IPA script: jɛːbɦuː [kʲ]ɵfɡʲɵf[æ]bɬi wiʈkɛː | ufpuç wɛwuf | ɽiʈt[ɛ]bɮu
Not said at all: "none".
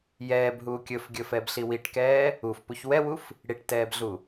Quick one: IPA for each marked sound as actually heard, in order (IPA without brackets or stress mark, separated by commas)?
kʲ, ɛ, ɛː